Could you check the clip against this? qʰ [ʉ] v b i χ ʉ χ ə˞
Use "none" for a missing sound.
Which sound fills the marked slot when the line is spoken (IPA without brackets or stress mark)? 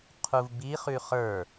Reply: u